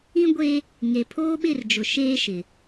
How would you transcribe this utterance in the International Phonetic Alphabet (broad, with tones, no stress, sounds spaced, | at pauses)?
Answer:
ĩ˦ ɡʷ e˦ | ŋ e˨ pʰ oː˦ ɓ ɪ˦˨ r d͡ʒ ʊ˨ ʃ eː˦ ʃ ɪ˨